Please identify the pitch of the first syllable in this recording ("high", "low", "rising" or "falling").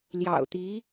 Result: low